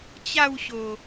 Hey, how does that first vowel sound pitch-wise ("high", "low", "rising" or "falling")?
falling